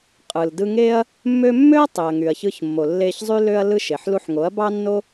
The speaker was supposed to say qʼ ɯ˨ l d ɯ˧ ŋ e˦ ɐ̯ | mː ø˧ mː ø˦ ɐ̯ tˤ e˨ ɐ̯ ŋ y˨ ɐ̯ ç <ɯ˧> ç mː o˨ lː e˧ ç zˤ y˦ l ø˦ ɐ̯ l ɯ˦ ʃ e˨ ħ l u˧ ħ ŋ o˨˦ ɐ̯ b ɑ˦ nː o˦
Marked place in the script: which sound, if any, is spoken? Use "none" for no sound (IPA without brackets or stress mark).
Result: ɯ˧